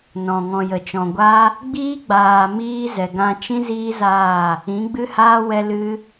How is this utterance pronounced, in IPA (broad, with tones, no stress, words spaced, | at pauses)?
nɔ̃˨ŋɔ̃˨jə˨t͡ʃɔ̃˨ ɡʷa˦ | ɡ͡biː˦ɡ͡baː˨miː˧ zɛ˨ɡã˧t͡ʃĩ˦ ziː˦zaː˦˨ | ĩ˨˦ɡ͡bɨ˦haː˦ wɛ˧lɨ˧